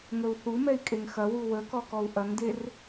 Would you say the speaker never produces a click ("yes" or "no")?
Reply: yes